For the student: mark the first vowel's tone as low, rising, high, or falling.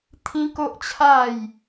high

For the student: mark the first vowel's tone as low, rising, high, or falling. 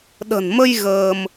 low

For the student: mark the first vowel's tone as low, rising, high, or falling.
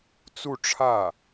falling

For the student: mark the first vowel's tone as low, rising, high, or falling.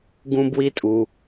high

